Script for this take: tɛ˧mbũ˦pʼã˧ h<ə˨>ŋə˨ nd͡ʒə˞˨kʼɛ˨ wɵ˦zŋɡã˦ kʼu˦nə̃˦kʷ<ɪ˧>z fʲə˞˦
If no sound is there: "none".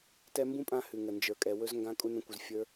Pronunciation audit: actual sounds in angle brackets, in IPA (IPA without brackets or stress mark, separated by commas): ʉ˨, ɪ˧